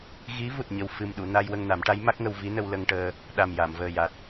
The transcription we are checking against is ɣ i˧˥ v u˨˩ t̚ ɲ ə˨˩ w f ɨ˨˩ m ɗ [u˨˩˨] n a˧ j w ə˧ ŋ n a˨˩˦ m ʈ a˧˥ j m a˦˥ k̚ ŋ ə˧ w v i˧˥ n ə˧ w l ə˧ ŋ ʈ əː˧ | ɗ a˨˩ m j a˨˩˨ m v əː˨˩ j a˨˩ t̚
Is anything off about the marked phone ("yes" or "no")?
no